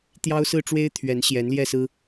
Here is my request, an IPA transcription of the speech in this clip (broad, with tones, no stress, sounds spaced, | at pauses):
t̪ j ɑ˦ ʊ̯ s ɹ̩˥˨ ʈ͡ʂ w e˦ ɪ̯ t̪ʰ ɥ ɛ˨˦ n ɕ j ɛ˨˦ n l j ɛ˥˨ s ɹ̩˦